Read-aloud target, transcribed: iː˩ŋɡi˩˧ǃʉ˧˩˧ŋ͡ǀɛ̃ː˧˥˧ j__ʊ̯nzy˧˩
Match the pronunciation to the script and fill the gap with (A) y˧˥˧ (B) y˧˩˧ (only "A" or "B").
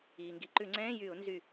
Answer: B